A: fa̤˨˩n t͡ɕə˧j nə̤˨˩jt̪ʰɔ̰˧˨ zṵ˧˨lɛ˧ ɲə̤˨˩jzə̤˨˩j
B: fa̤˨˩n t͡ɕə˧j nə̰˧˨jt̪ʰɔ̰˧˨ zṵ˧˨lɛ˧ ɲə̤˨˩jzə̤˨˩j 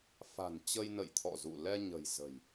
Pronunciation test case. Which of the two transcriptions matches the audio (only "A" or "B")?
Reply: B